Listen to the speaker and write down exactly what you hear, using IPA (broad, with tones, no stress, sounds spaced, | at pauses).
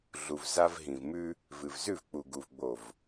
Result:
ɮ u˨ v z a˦ v ɦ ĩ˨ v m ʉ˦ | v ɨ˨ v z ʉ˦˨ v k͡p u˨ ɡ u˨ v ɡ͡b o˨ v